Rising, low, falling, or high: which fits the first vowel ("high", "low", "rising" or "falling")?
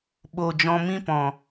low